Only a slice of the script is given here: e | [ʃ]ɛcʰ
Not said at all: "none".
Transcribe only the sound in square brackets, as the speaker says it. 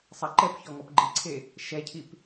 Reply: ʃ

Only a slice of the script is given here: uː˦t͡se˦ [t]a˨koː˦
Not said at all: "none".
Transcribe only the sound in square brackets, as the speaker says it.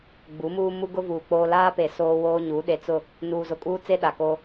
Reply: ɗ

